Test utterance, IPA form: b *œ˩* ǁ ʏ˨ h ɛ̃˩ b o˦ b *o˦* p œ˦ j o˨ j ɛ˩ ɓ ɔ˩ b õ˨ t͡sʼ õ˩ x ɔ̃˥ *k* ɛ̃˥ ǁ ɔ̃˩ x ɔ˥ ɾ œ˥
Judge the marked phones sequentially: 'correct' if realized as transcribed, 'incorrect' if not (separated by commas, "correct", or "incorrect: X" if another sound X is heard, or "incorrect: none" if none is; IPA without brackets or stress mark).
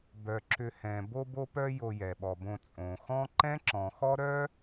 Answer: correct, correct, incorrect: ǃ